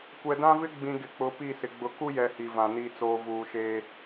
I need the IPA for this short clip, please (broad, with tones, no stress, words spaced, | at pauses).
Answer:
kʷɛ˨dã˦vɪ˦ɡ͡bĩ˨ ɡɪ˨k͡pʊ˨˦ pi˦˨sɪ˨ ɡ͡bʊ˨ku˦jɛ˨ hi˨vã˨ niː˨t͡soː˨vuː˨ʃeː˦